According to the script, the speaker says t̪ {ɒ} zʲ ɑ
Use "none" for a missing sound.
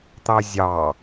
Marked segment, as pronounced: ɑ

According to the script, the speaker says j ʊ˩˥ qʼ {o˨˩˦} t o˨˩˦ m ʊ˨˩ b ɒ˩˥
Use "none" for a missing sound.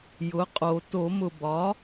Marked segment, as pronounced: o˨˩˦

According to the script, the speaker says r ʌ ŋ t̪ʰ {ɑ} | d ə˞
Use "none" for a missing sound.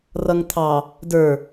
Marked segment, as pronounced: ɑ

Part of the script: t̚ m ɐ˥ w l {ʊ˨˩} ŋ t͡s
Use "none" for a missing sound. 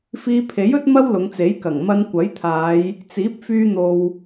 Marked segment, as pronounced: ʊ˨˧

